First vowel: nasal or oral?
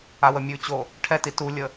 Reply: oral